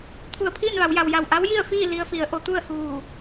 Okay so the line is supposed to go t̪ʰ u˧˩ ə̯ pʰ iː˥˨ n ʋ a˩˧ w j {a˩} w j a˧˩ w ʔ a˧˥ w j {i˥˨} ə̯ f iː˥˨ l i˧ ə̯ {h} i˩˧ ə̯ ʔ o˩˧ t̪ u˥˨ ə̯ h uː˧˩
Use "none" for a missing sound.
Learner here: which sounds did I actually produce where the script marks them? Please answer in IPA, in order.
a˩, i˥˨, f

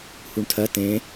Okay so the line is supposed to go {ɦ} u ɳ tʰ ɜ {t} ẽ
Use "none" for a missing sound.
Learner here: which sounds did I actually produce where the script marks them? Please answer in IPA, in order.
h, t

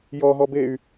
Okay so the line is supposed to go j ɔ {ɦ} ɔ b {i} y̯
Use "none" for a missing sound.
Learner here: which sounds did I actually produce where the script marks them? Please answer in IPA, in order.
ɦ, e

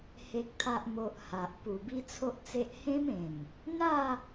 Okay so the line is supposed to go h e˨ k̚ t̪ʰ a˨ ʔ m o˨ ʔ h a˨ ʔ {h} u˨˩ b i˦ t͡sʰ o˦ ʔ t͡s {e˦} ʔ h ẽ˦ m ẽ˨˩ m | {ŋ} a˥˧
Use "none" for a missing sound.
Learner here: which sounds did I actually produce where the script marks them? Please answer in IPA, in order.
p, e˦, n̪

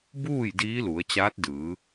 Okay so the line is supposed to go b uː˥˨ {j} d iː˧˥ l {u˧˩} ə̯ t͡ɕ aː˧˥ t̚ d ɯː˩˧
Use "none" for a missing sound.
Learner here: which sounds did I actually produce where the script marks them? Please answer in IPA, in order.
j, u˩˧

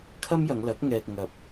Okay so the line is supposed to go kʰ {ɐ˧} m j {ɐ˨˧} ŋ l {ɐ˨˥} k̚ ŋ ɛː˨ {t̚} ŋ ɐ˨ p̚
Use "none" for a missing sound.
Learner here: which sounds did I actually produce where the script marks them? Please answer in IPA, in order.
ɐ˥, ɐ˨˧, ɐ˨˥, k̚

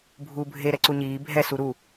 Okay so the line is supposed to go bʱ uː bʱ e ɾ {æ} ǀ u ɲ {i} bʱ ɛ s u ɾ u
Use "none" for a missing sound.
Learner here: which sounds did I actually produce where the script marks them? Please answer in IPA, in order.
ɛ, iː

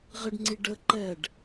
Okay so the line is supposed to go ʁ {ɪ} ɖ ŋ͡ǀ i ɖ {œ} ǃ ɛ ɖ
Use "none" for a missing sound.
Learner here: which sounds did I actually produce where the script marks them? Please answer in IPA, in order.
ɪ, ə

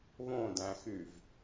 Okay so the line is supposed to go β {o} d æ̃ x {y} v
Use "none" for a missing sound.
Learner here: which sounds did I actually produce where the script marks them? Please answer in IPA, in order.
õ, y

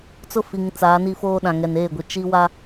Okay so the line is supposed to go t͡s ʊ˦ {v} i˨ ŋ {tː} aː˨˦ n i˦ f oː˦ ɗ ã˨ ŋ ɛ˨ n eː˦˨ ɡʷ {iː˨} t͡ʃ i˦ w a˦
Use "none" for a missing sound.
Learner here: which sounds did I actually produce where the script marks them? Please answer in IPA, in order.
f, t͡s, i˨

